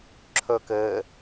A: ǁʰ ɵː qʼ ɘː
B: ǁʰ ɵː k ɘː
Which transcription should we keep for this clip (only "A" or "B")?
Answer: B